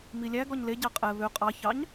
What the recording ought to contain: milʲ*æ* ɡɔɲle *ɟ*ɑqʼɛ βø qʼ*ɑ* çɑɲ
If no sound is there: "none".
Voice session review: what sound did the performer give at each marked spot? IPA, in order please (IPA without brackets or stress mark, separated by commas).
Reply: æ, ɟ, ɑ